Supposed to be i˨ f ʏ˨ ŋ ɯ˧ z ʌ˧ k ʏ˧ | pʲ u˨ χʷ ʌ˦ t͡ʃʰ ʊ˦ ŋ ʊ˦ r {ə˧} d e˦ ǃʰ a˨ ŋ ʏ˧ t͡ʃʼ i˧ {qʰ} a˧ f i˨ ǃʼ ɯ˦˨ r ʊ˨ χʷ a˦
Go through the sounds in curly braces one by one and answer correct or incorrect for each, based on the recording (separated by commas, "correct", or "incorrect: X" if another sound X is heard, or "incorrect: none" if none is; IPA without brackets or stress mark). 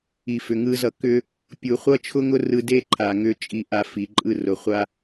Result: incorrect: ɯ˧, incorrect: ʔ